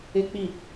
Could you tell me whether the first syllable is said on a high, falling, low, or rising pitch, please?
high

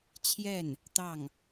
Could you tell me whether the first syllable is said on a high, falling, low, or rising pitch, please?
falling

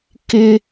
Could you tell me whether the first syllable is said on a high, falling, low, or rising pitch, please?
high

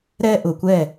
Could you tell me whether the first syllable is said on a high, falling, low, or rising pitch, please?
high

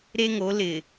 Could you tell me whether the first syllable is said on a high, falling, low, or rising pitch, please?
high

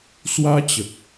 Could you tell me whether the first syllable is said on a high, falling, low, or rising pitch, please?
high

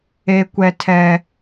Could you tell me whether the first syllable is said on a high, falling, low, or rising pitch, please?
high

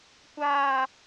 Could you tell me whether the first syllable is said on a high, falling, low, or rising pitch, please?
high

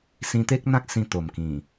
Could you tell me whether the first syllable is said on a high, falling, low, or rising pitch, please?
high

